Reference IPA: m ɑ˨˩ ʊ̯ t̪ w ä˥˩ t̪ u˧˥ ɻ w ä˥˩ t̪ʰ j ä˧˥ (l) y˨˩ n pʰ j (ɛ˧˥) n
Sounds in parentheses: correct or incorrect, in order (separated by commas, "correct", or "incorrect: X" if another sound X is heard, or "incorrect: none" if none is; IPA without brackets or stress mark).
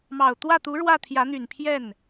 incorrect: n̪, incorrect: ɛ˥˩